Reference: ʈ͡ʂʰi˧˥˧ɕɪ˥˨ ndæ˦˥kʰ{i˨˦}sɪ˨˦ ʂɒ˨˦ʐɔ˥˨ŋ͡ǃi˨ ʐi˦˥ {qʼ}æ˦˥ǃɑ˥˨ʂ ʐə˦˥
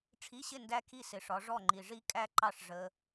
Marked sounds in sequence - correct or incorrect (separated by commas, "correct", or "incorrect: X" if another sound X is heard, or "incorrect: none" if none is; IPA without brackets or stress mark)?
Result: incorrect: i˥˨, incorrect: kʼ